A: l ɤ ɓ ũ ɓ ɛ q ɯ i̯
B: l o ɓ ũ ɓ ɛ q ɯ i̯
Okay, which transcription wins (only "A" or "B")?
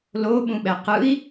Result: B